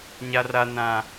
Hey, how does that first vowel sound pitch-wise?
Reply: high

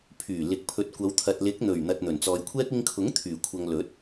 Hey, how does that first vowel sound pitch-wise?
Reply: low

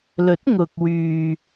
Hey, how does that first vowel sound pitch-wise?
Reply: rising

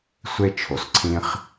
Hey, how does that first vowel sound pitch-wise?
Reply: high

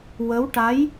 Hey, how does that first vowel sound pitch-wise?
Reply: rising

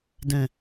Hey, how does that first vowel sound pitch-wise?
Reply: low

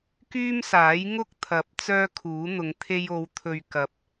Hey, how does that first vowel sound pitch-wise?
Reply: high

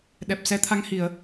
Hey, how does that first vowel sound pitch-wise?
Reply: low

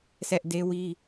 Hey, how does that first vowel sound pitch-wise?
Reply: high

